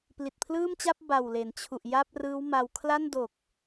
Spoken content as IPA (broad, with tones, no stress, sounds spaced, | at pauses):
p l i˨˩ t̚ pʰ l ɯː˥˩ m t͡ɕ a˥˩ p̚ b a˨˩ w l e˩˦ n t͡ɕʰ u˨˩ ʔ j a˥˩ p̚ r ɯː˦˥ w m a˧ w kʰ l a˥˩ n d o˨˩ k̚